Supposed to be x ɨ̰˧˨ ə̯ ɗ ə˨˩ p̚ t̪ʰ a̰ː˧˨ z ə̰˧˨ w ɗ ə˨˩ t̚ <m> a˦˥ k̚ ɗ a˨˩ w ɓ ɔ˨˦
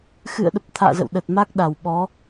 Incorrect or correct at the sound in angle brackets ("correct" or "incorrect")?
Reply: correct